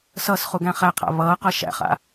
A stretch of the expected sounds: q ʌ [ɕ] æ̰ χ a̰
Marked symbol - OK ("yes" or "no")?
no